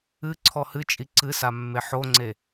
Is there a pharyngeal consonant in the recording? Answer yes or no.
yes